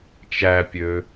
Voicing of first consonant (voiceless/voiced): voiceless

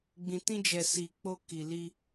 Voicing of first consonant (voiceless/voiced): voiced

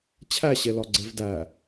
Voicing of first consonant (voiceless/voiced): voiceless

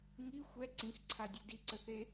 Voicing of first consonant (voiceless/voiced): voiced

